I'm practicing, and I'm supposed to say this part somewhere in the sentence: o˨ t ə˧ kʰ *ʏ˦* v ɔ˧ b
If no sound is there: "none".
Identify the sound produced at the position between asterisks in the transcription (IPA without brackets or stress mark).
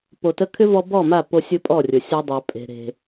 ʏ˦